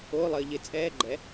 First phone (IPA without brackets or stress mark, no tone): o